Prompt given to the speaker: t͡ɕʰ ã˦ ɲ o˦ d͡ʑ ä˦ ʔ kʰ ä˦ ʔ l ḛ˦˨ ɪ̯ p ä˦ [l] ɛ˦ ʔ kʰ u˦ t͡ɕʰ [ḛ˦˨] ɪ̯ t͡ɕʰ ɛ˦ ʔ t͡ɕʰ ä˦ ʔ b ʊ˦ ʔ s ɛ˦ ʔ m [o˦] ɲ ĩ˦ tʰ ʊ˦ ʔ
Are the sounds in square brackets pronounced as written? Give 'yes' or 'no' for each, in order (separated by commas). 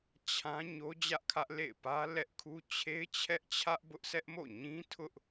yes, no, no